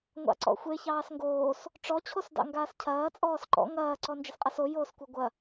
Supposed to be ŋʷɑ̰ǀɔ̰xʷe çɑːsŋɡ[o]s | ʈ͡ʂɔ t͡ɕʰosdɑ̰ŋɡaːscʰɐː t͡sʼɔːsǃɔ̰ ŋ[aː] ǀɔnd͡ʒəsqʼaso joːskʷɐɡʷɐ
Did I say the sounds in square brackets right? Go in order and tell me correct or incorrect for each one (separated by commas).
incorrect, incorrect